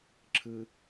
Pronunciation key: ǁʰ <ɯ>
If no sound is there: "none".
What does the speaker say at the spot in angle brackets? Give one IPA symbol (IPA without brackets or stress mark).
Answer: ɯ